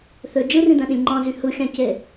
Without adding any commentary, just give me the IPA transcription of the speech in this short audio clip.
θø d͡ʒɯrĩdæ̃ɗĩlʲ ŋ͡ǃɑ̃zy hɯxʲɑ̃ce

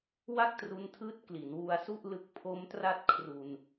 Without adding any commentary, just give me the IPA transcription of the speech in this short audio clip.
wa˥˩k̚tru˧ntʰɯː˦˥t̚ kli˩˦nwu˧a̯su˥˩ʔlɯ˦˥k̚ pʰo˦˥mtra˥˩t̚ kʰru˧n

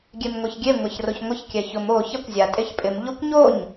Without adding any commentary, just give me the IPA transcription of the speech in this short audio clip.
ɡʲemŋʷeçɡʲe ŋʷaçroçŋʷɪç kʲɛçʊm o çakʷzʲa tʼeçpʼɪm ʎokʷɲoɲ

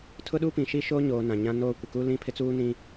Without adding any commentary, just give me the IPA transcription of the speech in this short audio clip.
tʰʊ˦ɗu˦pĩ˨ ʃi˦ʃoː˦ɲoː˨ nã˨ɲã˦noː˦ kʷɪ˨ku˦lĩ˦ pʰɪ˦t͡suː˦ nĩ˦

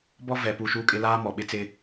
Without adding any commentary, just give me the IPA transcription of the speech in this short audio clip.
bɔ˦ vɛ˨pu˦˨ʃuː˦kʼɪ˦ laː˦mɔ˨ɓɪ˦t͡sɪ˦

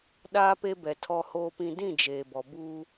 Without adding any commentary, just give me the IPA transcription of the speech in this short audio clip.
ɗaː˦pe˦bɛ˨ tʰɔ˨hoː˨pĩ˨ dĩ˦˨d͡ʒeː˨bɔ˨buː˦

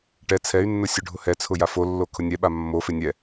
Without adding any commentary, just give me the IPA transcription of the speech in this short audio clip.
ʈɛ t͡sʰɛy̯nːʊ sʲʊɖʱʊhɛt͡sʰʊ jafolːo kʰʊnʲɛɓa mːofɪ nʲɛ

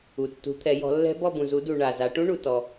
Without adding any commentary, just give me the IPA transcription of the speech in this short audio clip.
u˨tːṳ˨˦t̪ʰɛ˨˦ jɔ̤˨˦lːɛ̤˦˥ bɔ˦˨bũ˨zu˨˦du˨ ɳa˨za˨˦ ʈũ˦˥ɳu˨tɔ˨

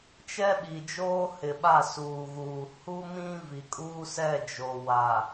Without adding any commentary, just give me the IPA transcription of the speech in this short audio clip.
t͡ʃɛ˦ɓi˨d͡ʒoː˦ hɪ˨ɓa˦˨suː˨ɣuː˨ hu˦mĩ˦ vi˨kʼuː˦ sɛ˦˨ d͡ʒo˨wa˨

